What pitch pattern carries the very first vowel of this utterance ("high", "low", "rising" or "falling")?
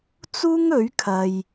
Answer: high